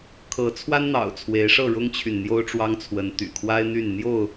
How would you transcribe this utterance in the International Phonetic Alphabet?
kʰ ɤ˨˦ t͡sʰ w a˦ n n̪ ɑ̰˨˩ ʊ̯ t͡sʰ w e˨˦ ɪ̯ ʂ ɤ˥˨ ɻ ʊ˦ ŋ t͡ɕʰ y˨ n n̪ j o˦ ʊ̯ ʈ͡ʂ w ɑ˦ ŋ t͡sʰ w ə˨˦ n t̪ y̰˨˩ kʰ w a˦ ɪ̯ n̪ y˥˨ n n̪ j o˥˨ ʊ̯

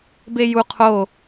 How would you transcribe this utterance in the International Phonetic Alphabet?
b e j u qʰ o

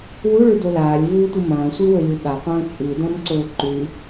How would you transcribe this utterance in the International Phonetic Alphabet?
w u ɭ ʉ d o l aː lʲ v uː tʷ ɨ m ɐ̃ː sʷ i w ɵ lʲ u ɠ a qʷ ɐ̃ː t͡ʃʼ ɨ d ɐ̃ m ǀ ɵː ǃ ʉ

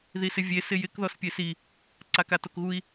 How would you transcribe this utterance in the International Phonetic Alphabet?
ð i s ɪ vʲ e s ɪ j ɪ k ð ɔ s pʲ e s i | ǀ a k a t o k ɣ u i̯

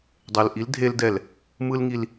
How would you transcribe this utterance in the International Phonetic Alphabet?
dˤ e˨ l ʔ i˨˦ l dʱ e˦ l d ɛ˦˨ l | m ɯ˦ l ŋ i˦ l

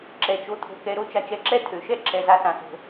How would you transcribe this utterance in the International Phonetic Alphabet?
ǁ ɛ˩ t͡ʃ o˨ t̪ʰ o̤˨ k ɛ˨ ɾ o˦ t͡ʃ a˨ t͡ʃ ɛ˨ ǁ ɛ˦ t̪ʰ ø˩ ʃ ɛ˥ ǁ ɛ˩ z a˨ s ã˩ s o̤˩

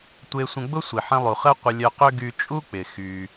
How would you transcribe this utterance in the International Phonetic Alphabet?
tʷ e˧ sʷ ə̃˧ ɡ͡b ʊ˥ sʷ i˩ ħ ə̃˧ lˠ u˩ χ ə˥ qʷ ə˧ lʲ œ˧ q ø˥ ɡ y˧ t͡ʃʼ u˥ k͡p ɪ˩ x y˩

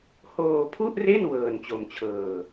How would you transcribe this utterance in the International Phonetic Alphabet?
h oː˧ pʰ u˥˩ ʔ r e˥˩ n w ɤː˧ n t͡ɕ o˧ m t͡ɕʰ ɤː˧

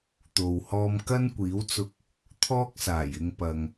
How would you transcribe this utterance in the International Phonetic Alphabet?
t̪ o˨ w h ɔː˧ m k ɐ˥ n kʷ iː˨˥ w t͡s ʊ˧ k̚ | t̪ʰ ɔː˥ k̚ s aː˨˩ j ɪ˧ ŋ p ɐ˨ ŋ

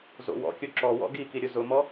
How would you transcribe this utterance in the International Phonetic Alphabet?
z o̰ w ɔ̰ kʲ o ǁ ɔ w ɔ̰ ɡ i k i ɾʲ ʊ z ʊ m ɔ

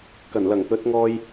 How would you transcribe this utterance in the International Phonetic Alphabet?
k ɐ˨˩ n l ɐ˨˩ ŋ t̪ ɵ˨˥ t̚ ŋ ɔː˧ j

